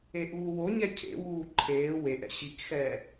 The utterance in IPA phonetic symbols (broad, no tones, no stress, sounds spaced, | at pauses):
e ʔ uː w o ɲ ɛ cʰ ḛ w uː ǃʰ eː w e ʔ ɛ̰ ɕ i k x ɛː